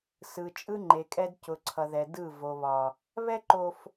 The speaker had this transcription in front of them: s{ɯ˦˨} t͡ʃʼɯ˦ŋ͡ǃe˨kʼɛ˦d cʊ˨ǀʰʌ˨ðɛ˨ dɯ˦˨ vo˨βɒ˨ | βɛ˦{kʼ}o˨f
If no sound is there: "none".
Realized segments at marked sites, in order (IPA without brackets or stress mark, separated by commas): ɯ˨, ǃ